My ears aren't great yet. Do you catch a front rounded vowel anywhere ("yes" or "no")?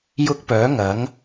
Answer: yes